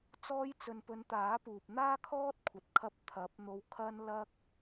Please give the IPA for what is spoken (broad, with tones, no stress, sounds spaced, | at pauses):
t͡s ɔː˧ j t͡s ɵ˨ n p ɵ˨˧ n t̪ aː˨˥ p uː˨ p̚ n̪ aː˥ kʰ ɔː˥ t̚ kʷʰ ɐ˨ t̚ kʰ ɐ˧ p̚ t̪ʰ ɐ˨˥ p̚ n̪ o˧ w kʰ ɐ˥ n l ɐ˥ k̚